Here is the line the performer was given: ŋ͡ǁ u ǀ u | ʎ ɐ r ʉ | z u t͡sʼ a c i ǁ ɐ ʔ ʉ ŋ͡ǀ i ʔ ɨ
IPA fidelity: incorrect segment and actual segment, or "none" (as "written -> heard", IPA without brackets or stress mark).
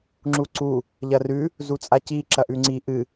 none